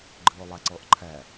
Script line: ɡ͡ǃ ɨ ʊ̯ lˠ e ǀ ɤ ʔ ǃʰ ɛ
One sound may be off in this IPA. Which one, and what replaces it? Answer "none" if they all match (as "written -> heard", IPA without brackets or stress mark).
e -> ɛ